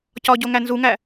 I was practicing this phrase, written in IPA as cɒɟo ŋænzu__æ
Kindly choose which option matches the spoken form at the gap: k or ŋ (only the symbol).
ŋ